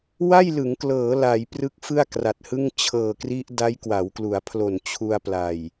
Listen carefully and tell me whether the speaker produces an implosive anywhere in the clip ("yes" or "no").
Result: no